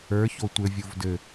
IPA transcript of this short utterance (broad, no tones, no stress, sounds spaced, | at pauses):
ə˞ ç o tʷ ɘ vʲ o v d ɘ